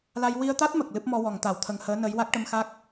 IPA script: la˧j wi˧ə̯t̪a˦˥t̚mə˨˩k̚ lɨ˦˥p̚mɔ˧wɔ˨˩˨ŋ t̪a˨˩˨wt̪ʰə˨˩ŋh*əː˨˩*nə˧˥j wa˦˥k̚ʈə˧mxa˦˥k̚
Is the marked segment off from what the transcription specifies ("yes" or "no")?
yes